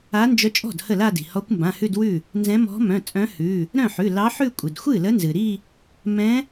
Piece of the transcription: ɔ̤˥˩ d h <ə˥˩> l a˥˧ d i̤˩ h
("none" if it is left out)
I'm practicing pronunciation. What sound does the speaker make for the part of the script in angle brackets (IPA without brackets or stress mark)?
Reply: ə˥˩